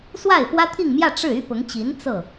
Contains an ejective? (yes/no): no